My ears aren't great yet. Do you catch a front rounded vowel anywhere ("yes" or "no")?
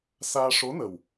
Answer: no